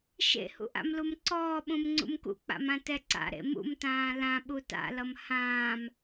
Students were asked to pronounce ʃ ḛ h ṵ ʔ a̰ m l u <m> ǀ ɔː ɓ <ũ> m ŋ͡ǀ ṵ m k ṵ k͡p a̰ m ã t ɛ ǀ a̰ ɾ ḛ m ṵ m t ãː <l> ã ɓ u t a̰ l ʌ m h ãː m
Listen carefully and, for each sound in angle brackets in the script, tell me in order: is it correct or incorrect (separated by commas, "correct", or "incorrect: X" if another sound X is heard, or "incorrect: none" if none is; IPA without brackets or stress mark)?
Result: correct, correct, correct